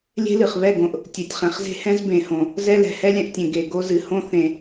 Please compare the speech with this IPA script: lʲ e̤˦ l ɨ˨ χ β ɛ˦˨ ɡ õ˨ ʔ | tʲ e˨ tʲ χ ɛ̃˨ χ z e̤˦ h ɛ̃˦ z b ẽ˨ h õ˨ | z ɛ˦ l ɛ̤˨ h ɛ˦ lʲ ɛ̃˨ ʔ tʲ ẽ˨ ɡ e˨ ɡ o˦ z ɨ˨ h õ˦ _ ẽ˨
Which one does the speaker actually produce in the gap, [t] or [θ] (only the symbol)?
θ